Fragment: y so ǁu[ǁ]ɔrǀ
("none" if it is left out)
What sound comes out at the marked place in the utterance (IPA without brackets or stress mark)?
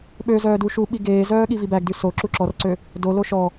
ǁ